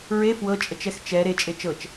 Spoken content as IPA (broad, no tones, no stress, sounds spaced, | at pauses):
ɹ e f w ɤ t͡ʃʼ ə t͡ʃ ɛ x t͡ʃ ɛ ɾ e t͡ʃʼ e t͡ʃ ɤ t͡ʃ